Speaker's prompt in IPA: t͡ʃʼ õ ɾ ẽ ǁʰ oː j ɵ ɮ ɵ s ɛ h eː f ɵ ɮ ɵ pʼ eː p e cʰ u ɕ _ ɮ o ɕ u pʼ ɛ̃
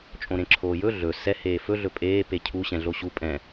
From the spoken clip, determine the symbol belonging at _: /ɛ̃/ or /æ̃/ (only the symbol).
ɛ̃